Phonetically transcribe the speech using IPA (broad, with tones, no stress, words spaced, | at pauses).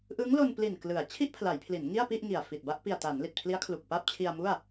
ʔɯ˦˥ŋlo˧npli˨˩n klɯ˩˦a̯ t͡ɕʰi˥˩ʔpʰla˩˦jpʰli˩˦n ŋi˥˩a̯pi˥˩ʔŋi˨˩a̯ fi˨˩t̚ba˥˩ʔ pi˨˩a̯ta˩˦n li˨˩t̚pʰli˦˥a̯kʰlu˨˩k̚ pa˥˩p̚ t͡ɕʰi˧a̯mu˥˩a̯